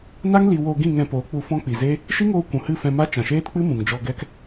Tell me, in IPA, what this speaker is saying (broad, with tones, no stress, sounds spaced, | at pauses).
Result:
n a˦ ŋ l i˦ w o˧ ɡ ĩ˦˨ ŋ ɛ̃˧ p oː˨˦ k͡p u˧ f ɔ̃˦ k͡p i˨ z eː˦ | ʃ i˦ ŋ oː˧ kʷ ũ˨ h ɨ˦˨ f ɛ̃˧ m a˦ t͡ʃ ã˨ ʃ eː˦ t k͡p ɨ˦ m ũ˨ ŋ d͡ʒ ɔ˧ ɡ ɛ˦ k